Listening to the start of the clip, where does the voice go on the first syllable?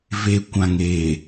low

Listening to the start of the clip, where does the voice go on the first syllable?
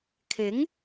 rising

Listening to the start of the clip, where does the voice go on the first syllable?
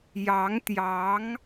rising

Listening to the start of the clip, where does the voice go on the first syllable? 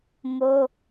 high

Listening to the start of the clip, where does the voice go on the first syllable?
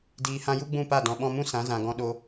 low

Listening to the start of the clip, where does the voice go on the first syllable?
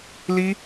high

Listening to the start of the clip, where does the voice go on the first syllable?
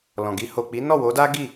low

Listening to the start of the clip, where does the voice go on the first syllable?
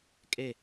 falling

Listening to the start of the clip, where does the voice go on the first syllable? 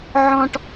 high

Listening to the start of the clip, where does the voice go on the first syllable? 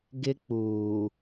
high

